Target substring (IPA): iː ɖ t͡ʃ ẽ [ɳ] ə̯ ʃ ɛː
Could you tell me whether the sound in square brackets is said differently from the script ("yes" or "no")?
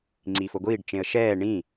yes